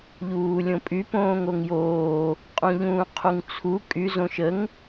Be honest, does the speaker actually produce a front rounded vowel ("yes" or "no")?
yes